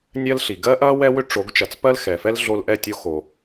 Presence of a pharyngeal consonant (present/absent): absent